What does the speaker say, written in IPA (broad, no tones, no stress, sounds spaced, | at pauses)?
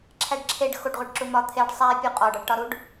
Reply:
ǁʰ æ ɖ ǁʰ e ɖ x o ɖ ʁʷ e ɖ ǁ u m ɒ t̪ʰ e ɖ sˤ æ pʲ u qʼ ɒ ɖ ɒ ɖ ʈ ɒ ɾ u ɖ